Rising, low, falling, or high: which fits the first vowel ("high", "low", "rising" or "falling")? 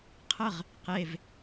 falling